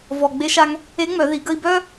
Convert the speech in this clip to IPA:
v ɔ˩ ɡ͡b e˧ ʃ a˧ ŋ | e˧˥ ŋ͡m œ˩˧ ð i˩˧ ɡ ə˧ i̯ b œ˥

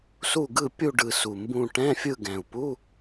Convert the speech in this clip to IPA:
s u˦˨ ɡ ɯ˦˨ pʲ u˦˨ ɖ ɯ˨˩ s u˨˩ m b ũ˦˨ ʈ ɛ̃˧˥˧ fʲ ɯ˦˨ ɡ ɛ̃˨˩ u̯ p u˧˥˧

